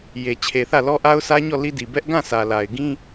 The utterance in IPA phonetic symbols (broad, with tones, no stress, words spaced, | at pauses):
je˨ t͡ɕʰe˨θä˦˨lɔ˦ ʔa˦ʊ̯sä˦ɲɔ˦˨ li˦di˨ bɛ˦ʔ ɡã˦˨sʰä˨la˨ɪ̯ɡĩ˦